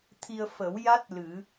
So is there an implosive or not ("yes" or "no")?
no